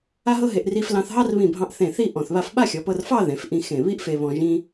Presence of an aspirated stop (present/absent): absent